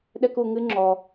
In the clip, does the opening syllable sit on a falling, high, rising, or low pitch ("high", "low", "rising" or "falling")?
high